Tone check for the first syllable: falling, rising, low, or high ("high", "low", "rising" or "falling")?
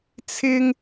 high